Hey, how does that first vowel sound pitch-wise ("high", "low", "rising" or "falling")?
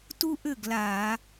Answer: high